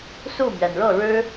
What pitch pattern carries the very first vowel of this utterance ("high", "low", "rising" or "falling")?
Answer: falling